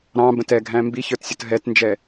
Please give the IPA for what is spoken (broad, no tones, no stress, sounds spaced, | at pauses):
ɾ ɑ̃ b ə̃ t ɛ ɡʱ æ̃ m b i ç ə˞ t sʲ ʌ t ɦ ɛ t n d͡ʒ ɛ